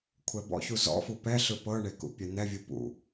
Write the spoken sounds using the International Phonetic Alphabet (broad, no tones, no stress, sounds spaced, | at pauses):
kʷʰ ɛ b ɔ̰ ç u z ɔ̰ f u p ɛ ɬ ɯ p ɤ ɳ e k ṵ pʲ ɛ n̪ ɛ vʲ ɯ p ṵ